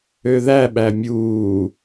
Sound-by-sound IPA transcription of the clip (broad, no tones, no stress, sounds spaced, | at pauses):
ø ð æ ɓ æ mʲ uː